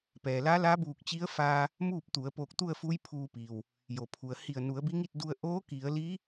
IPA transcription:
p ɛː˩ l a˧˥ l a˧˥ b uː˧˩ k̚ t͡ɕ i˧˥ ə̯ f aː˧ | m uː˥˨ p̚ t̪ u˩˧ ə̯ p oː˧˩ k̚ t̪ u˥˨ ə̯ f uː˧˥ j pʰ uː˧ p iː˩ w | j o˩ pʰ u˩ ə̯ h i˧˩ ə̯ n u˩˧ ə̯ b i˧˥ ŋ i˥˨ t̚ d u˧ ə̯ ʔ oː˧˥ k i˩˧ ə̯ l i˧˥

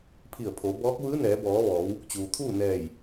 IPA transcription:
pʰ i˧˩ ə̯ pʰ o˩˧ b ɔː˧˥ k̚ ʋ ɯː˧˥ n ɛː˩˧ b ɔː˩˧ ʋ ɔː˩˧ w | t͡ɕ uː˩ t̪ʰ uː˥˨ n ɛː˧˩ j

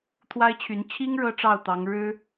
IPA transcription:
t̪ʰ w a˥ ɪ̯ t͡ɕʰ y˧˥ n t͡ɕʰ i˥ ŋ ɻ ɤ˥ ʈ͡ʂ ɑ˥˩ ʊ̯ t̪ ɑ˧˥ ŋ ɻ ɻ̩˥

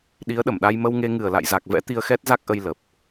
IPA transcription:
ɗ i˨˦ ə̯ ɗ ə˧˩ m ɗ a˧ j m ə˧ w ŋ e˧ ŋ ɨ˨˩ ə̯ l a̰˧˨ j z a˨˩ k̚ v ɛ̰˧˥ t̪ i˧ ə̯ x ɛ˦˥ t̚ z a˦˥ k̚ ʔ ə˧ j l ə˨˩ p̚

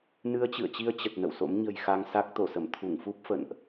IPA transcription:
n ɨ˧ ə̯ t͡ɕ ɨ̰˧˨ ə̯ t͡ɕ i˧ ə̯ t͡ɕ ə˨˩ t̚ n ə̰˧˨ w s o̰˧˥ m ɲ ə̤˨˩ j x a˧ ŋ s a˦˥ k̚ t̪ o˧˩ s ə˧˩ m t̪ʰ u˧˩ ŋ f u˦˥ p̚ f ə̰˧˨ n ʔ

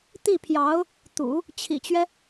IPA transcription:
t̪ i˥˩ pʰ j ɑ˧˥ ʊ̯ | t̪ ṵ˨˩˦ | t͡ɕʰ ḭ˨˩ t͡ɕ ɥ ɛ˦

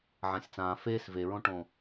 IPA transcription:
ʕ ã sʲ t͡s ãː f eː s v e ɹ õ ʈ õ

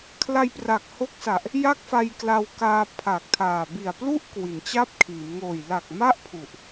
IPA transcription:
kʰ l a˧ j p r a˨˩ k̚ h o˦˥ k̚ s a˨˩ ʔ | j a˥˩ k̚ f a˧ j k l a˧ w k aː˧ pʰ aː˨˩ k̚ tʰ aː˨˩ b i˨˩ a̯ p l u˥˩ ʔ k w i˩˦ n t͡ɕ a˥˩ p̚ kʰ iː˩˦ m ŋ oː˨˩ j l a˨˩ k̚ m a˥˩ ʔ pʰ u˨˩ ʔ

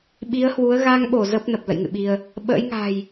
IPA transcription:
ɓ i˨˦ ə̯ h w u˨˦ ə̯ ɣ a˧ ŋ ɓ o˧˩ z ə˦˥ p̚ n ə˨˩ p̚ l ə̰˧˨ j ŋ ɨ̰˧˨ ɓ i˧ ə̯ | ɓ ə̰ː˧˥ j ŋ a̤˨˩ j

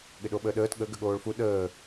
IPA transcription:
ɠ ɪ ɗ o ɓ əː ɗ əː t ɠ ə ɡ ə ɠ oː ɭ f u ɗ əː

